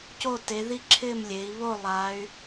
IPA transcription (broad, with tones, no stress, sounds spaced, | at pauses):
c o˦˨ t e˩˧ ð i˦˨ ǁʰ ɪ˦˨ m lʲ e˩˧ i̯ β o˦˨ lˠ a˩˧ y̯